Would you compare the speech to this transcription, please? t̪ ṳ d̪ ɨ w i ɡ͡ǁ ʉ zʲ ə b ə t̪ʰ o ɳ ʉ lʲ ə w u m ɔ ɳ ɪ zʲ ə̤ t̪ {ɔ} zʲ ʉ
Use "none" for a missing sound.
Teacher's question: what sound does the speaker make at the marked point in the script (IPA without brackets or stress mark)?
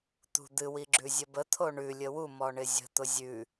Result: ʊ